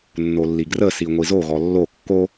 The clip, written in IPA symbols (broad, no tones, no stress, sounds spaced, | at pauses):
nː o lː i ɡ r ə s i ŋʷ i z o ɣ ɔ lː o kː o